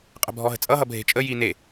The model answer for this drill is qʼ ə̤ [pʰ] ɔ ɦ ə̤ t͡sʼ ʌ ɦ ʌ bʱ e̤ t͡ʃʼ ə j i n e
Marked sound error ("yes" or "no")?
yes